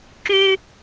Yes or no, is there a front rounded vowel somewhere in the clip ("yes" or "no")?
yes